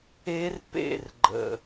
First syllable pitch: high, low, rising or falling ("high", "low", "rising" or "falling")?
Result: high